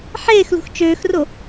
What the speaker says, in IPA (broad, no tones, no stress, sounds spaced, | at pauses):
ħ eː x l ṳ x t͡ʃ øː x r o